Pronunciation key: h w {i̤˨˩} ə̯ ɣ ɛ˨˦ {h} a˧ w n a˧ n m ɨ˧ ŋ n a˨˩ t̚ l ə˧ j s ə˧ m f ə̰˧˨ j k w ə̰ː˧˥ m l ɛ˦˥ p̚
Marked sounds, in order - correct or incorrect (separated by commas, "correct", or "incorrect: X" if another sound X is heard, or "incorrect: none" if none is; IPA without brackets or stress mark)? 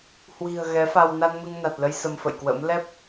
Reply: correct, incorrect: f